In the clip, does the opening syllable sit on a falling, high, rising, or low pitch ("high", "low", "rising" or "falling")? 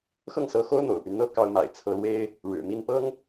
falling